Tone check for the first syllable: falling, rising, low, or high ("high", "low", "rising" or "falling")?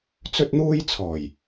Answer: high